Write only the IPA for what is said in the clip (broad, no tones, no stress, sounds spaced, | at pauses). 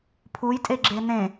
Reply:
pʰ u j tʼ e ɡ͡ǁ e n ẽ